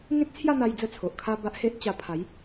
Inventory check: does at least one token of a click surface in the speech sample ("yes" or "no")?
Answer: no